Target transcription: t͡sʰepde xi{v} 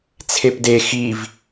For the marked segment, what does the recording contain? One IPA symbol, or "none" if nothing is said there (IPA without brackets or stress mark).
v